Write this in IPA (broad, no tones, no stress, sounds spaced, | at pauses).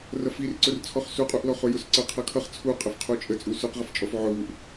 r ʌ f i r ǀ ʊ r t͡sʰ ɔ χ s u qʼ u ʔ l ɔ χ ʊ j ʊ s ǀ ə qʰ ʌ kʰ ʌ χ t͡sʰ u qʼ ə f qʰ u t͡ʃʼ ə t͡sʼ u s ʊ q ʁ ɪ f t͡ʃʼ ɔ f ʕ ʊ β u ʔ